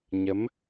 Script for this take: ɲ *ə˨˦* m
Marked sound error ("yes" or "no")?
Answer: no